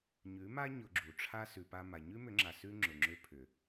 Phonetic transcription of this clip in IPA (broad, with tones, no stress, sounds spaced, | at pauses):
ɲ ʉ˨˦ m a˦ ɲ ʊ˧ ɡ͡ǁ u˨ ʈ͡ʂʰ a˦ s ʉ˨ p a˧ m a˨ ɲ ʉ˦ m ʏ˨˦ ŋ͡ǁ a˨ s ʉ˦ ŋ͡ǁ ʊ˨ ŋ͡ǁ ʏ˧ pʰ ʏ˨